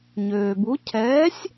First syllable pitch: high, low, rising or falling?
low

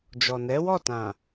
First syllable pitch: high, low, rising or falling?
low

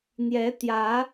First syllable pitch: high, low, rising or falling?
rising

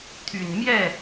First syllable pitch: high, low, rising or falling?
low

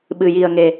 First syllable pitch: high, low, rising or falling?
low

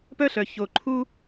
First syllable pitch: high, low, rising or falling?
high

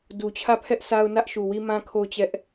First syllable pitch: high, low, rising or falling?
low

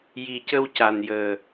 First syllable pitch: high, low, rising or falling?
low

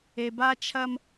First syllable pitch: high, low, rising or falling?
low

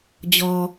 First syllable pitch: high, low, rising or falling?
low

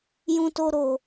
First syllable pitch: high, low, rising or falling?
high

